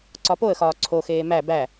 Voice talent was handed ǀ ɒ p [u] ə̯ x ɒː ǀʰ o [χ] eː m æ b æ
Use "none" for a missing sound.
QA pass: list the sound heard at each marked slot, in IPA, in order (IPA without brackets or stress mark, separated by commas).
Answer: o, x